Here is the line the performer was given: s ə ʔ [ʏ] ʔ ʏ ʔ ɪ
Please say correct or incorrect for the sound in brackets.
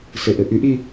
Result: incorrect